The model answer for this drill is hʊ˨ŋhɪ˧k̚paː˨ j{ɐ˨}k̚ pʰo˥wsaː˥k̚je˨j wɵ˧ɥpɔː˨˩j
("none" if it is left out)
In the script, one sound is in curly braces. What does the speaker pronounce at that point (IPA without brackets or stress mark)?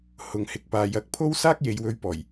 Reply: ɐ˧